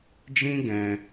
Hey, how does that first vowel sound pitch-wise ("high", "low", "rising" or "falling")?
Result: high